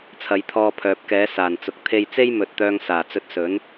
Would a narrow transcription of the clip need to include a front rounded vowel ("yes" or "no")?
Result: yes